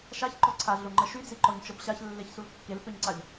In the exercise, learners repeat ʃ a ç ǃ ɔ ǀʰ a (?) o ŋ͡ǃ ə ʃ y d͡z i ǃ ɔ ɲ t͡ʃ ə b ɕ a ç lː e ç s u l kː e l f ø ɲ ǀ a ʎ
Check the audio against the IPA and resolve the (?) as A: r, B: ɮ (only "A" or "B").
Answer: B